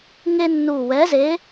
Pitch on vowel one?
high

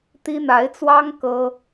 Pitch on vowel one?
high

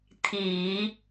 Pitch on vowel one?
low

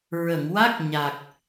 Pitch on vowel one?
low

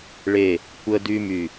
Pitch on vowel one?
falling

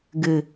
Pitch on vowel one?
low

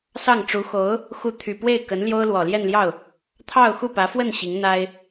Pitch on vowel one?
falling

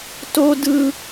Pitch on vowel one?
high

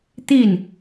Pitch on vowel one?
falling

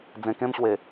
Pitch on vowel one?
low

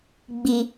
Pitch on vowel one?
low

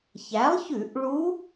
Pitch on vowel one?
rising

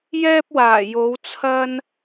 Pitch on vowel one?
high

